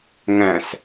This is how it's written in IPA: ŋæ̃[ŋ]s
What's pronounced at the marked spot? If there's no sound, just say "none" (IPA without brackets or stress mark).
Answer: none